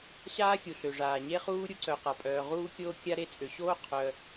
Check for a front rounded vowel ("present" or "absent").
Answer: present